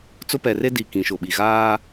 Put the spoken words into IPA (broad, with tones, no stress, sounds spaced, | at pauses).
t͡s ʊ˦ p ɛ˨ r e˦ d i˨ k ĩ˨ ʃ ʊ˨ ɓ i˨ ɣ aː˦